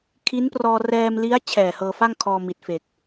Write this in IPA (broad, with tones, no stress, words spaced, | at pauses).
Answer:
kʰi˦˥nprɔː˧ rɛː˧mli˦˥a̯ t͡ɕʰɛː˨˩hɤː˧fa˥˩ŋkʰɔː˧ mi˨˩t̚fe˨˩k̚